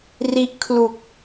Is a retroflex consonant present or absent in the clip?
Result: absent